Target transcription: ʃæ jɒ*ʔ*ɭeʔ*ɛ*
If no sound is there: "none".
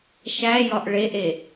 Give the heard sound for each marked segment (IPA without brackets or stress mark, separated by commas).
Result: ʔ, e